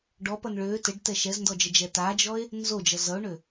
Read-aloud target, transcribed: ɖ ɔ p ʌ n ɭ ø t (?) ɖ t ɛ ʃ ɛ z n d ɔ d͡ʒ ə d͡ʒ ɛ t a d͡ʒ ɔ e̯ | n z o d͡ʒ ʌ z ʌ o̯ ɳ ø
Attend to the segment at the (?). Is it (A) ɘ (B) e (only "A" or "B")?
A